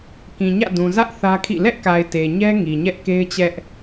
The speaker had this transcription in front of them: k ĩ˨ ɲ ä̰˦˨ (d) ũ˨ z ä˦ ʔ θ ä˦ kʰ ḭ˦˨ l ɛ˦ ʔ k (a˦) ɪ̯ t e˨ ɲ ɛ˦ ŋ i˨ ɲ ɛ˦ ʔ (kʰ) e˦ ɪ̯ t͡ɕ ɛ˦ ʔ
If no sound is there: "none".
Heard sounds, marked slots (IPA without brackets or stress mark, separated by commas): d, a˨, k